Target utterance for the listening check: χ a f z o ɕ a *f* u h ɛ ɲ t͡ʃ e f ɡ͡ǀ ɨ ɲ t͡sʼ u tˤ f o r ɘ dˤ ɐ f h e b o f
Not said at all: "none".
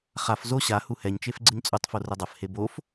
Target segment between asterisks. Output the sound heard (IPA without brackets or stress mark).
h